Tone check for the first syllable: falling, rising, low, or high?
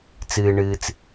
low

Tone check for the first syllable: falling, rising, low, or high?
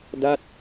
falling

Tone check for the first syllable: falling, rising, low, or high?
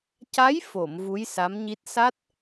rising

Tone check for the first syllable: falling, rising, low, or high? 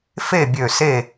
falling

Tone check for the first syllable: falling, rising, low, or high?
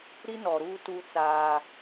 high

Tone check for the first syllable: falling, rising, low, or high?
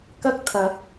high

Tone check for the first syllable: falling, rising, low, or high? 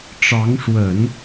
rising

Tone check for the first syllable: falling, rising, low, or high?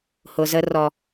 low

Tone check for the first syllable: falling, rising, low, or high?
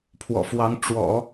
low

